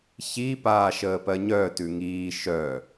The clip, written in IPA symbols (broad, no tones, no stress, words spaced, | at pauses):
çi paːʃəːpɜɲœ tʉŋiː ʃœ